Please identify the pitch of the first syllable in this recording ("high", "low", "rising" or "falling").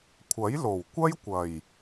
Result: rising